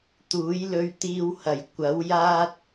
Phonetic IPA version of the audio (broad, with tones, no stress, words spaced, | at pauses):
t̪uː˨˥jlɵ˧ɥt̪iː˧whɐ˨˩j kʷɐ˨˥wjaː˥t̚